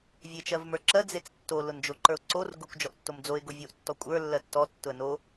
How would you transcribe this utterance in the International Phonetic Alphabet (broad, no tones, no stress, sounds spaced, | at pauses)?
vʲ e t͡ʃ ɜ v m ə˞ ǁ ɜ d͡z e t͡s tː o l ʊ n d͡ʒ o ǃ ə˞ ʊ̯ ǀ o r ɡ ʊ kʷ d͡ʒ ɔ ʔ tː o m d͡z o ɪ̯ ɡ o vʲ o ʔ tː ɔ kʷʼ ə˞ lː ɜ tː ɔ tː ʊ ə̯ n o